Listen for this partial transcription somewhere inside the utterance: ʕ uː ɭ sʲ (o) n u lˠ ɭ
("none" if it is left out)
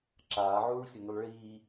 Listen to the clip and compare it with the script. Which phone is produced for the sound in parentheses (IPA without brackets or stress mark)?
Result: o